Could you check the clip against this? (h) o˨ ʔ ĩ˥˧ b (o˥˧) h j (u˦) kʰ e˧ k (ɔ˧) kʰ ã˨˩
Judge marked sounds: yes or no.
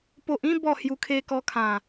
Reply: no, no, no, yes

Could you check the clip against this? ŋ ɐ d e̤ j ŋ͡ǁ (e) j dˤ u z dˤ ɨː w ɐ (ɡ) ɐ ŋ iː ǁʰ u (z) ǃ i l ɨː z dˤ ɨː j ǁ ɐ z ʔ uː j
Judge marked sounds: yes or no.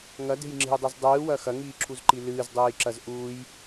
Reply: no, no, yes

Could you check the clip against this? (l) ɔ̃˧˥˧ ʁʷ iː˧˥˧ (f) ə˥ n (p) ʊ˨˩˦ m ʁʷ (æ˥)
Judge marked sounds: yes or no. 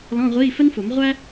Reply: yes, yes, no, yes

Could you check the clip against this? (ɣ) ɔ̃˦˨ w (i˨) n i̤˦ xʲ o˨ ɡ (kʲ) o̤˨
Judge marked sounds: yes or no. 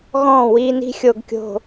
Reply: yes, no, yes

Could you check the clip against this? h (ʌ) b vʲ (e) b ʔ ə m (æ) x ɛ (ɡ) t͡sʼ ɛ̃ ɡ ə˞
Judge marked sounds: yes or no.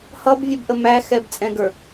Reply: yes, no, yes, no

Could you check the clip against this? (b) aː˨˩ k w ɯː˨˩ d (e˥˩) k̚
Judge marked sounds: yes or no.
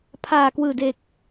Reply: no, no

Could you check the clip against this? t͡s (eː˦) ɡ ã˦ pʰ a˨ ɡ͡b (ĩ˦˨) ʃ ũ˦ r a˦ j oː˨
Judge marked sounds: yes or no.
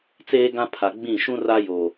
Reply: yes, yes

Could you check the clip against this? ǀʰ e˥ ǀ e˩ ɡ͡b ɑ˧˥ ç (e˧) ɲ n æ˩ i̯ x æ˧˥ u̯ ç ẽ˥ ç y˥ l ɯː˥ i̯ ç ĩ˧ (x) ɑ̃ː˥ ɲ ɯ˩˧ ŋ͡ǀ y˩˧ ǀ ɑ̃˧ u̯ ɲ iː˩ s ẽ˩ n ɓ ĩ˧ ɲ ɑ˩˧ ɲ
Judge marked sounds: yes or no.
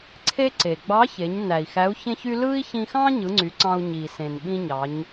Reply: no, yes

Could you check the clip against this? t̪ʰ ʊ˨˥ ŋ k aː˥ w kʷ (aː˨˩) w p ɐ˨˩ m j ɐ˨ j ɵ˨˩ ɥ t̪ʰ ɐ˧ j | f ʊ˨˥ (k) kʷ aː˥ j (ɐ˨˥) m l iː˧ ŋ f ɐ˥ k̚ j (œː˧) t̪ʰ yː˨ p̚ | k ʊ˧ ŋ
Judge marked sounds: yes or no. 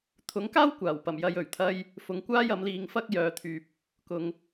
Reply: yes, no, yes, no

